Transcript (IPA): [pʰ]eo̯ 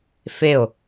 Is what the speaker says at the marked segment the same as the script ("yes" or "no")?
no